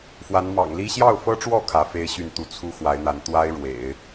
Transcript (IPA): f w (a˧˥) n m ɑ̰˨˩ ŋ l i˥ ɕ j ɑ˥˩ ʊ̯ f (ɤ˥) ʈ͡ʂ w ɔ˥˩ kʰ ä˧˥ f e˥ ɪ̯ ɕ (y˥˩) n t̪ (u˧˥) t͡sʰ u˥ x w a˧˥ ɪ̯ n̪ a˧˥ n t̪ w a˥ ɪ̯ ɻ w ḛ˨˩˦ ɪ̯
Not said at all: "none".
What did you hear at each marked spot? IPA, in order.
a˧˥, ɤ˥, y˥˩, u˧˥

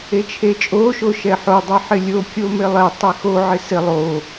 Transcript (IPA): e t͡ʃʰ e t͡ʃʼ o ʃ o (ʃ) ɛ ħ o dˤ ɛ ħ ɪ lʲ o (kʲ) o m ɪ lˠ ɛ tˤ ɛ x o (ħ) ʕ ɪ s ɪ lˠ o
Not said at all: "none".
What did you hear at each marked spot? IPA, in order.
ʃ, kʲ, none

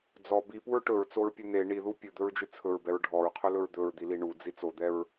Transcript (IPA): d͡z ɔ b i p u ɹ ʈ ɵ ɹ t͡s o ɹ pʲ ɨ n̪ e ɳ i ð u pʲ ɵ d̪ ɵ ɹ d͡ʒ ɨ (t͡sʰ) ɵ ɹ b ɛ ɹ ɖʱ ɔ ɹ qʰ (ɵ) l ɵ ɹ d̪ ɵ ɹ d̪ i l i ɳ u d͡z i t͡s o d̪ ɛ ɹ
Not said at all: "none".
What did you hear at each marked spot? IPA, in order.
t͡sʰ, ɵ

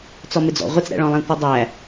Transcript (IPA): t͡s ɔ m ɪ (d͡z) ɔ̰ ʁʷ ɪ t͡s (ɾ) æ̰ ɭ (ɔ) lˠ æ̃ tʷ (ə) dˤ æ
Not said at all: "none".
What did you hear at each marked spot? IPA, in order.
d͡z, ɾ, ɔ̃, ɪ

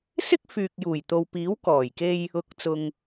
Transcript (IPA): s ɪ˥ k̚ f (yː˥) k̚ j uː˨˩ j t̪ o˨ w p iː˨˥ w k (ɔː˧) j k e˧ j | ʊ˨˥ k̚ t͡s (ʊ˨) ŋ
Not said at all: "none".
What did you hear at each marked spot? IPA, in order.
yː˨, ɔː˨˩, ʊ˨

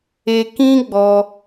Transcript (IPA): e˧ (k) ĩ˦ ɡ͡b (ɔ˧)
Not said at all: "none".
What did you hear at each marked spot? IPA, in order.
k, ɔ˧

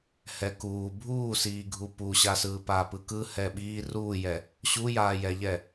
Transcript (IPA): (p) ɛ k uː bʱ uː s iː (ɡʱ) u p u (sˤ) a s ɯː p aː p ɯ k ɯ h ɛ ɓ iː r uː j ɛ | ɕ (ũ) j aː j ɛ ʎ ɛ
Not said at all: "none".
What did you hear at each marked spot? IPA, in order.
h, ɡʱ, ɕ, u

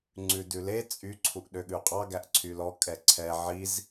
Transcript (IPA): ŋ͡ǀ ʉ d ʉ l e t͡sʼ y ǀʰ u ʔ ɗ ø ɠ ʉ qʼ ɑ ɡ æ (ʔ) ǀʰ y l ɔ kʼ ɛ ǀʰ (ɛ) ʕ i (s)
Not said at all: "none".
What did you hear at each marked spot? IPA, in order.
ʔ, ɛ, z

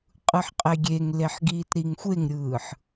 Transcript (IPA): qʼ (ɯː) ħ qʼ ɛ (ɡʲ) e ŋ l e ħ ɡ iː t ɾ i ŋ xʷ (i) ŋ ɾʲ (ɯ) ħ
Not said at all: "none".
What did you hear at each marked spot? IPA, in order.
ɯ, ɡʲ, e, ɯː

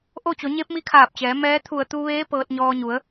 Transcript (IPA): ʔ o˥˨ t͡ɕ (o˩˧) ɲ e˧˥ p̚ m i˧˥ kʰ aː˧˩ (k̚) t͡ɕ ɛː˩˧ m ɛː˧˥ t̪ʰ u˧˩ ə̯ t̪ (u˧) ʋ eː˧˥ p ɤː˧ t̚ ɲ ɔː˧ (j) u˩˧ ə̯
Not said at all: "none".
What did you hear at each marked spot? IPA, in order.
o˩˧, p̚, u˧, ɲ

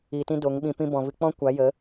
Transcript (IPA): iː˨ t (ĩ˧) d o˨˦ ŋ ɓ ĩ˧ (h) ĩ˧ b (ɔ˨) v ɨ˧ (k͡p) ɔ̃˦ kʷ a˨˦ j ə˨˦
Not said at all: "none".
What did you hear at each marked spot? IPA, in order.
ĩ˧, p, ɔ̃˨, k͡p

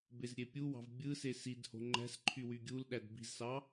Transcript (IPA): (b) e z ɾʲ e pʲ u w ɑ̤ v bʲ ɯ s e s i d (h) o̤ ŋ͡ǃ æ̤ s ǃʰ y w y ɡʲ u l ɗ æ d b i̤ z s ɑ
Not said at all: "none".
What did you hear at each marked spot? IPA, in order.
b, h

